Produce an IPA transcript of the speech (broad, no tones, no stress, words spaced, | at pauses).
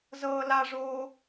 zɤːlaʐoː